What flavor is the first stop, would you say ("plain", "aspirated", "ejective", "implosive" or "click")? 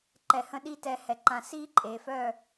click